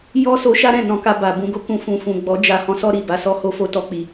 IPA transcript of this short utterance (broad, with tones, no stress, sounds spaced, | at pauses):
j ɔ˦ s o˧ ʃ a˦ ɾ ɛ̃˦˨ n ɔ̃˧ k a˧ b a˨ b ũ˧ ɡ o˧ k ũ˧ f ũ˨ f ũ˨ ɡ͡b ɔ˨˦ d͡ʒ a˧ h ɔ̃˧ s ɔ˦ ɾ i˦˨ b a˨˦ s ɔ˦ h o˦ f o˦ t ɔ˧ k͡p i˨